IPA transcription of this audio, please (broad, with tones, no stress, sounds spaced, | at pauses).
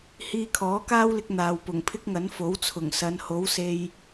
h iː˧ kʰ ɔː˨˥ k aː˥ w l ɪ˧ k̚ n̪ aː˨ w p ʊ˨˩ ŋ pʰ ɪ˥ k̚ ŋ ɐ˨˥ n f o˨˥ w t͡sʰ ʊ˨˩ ŋ s ɐ˨˧ n h o˨˥ w s e˧ j